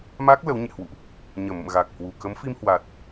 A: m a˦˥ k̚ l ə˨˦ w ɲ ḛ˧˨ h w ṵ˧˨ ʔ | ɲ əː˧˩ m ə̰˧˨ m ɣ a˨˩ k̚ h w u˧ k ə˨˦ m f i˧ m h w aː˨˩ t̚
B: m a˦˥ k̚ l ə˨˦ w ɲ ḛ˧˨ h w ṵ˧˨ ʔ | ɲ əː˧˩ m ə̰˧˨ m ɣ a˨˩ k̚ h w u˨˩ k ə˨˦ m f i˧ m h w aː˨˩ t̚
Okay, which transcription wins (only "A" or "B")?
B